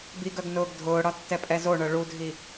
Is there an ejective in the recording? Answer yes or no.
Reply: yes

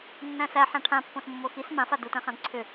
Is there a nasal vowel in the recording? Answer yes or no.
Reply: yes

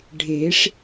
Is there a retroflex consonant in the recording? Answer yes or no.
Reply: yes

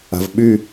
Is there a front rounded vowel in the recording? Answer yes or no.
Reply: yes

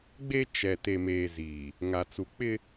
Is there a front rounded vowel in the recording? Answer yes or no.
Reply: no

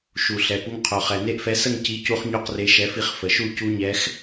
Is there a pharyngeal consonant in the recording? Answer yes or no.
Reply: no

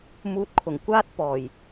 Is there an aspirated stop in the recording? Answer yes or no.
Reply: yes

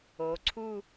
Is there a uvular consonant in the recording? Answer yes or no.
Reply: no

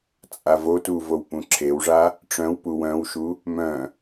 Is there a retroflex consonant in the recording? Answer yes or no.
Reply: yes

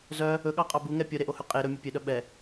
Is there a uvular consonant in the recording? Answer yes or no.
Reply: yes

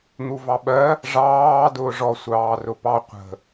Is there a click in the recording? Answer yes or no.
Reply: no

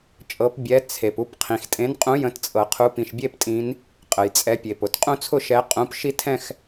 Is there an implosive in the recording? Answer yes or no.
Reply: no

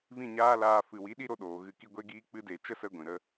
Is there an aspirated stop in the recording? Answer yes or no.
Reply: no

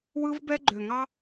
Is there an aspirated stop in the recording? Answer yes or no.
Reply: no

